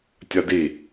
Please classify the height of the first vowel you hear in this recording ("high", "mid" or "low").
low